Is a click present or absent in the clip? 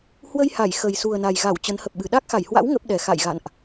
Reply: absent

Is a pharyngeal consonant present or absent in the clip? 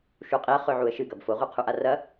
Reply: present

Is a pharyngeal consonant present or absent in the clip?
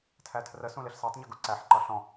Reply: present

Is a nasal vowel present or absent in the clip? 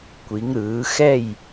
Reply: absent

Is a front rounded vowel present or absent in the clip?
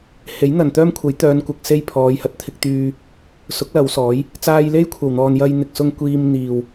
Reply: present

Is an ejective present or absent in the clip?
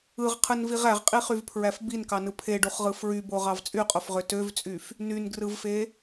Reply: present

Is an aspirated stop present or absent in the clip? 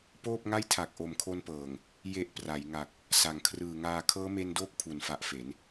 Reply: present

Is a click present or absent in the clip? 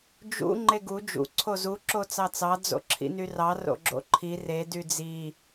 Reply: present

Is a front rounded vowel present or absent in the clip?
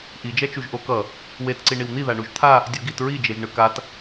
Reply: absent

